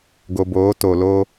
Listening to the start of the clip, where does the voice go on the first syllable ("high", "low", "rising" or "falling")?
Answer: low